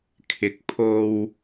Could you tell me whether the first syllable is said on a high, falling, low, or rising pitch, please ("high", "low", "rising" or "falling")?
rising